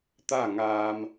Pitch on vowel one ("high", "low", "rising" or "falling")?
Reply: falling